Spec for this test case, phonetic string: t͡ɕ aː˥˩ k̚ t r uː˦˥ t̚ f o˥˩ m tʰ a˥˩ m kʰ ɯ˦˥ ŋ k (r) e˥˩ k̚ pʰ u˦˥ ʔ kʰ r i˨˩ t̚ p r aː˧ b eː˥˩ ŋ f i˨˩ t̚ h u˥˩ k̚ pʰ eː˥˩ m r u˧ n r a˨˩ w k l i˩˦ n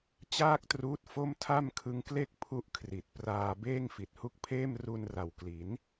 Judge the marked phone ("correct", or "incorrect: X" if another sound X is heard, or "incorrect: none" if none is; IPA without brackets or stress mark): incorrect: l